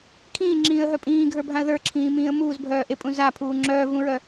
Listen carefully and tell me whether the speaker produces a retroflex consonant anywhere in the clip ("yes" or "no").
no